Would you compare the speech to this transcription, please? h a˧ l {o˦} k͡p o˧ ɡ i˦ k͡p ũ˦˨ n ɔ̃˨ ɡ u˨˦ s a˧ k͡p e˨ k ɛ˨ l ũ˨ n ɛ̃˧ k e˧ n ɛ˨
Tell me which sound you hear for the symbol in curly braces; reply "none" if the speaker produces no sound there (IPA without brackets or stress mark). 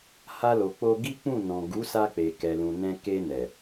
o˨